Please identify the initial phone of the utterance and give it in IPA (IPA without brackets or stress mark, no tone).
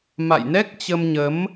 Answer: m